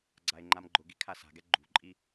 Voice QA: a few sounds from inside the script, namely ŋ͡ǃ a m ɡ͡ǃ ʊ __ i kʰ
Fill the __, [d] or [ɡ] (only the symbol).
ɡ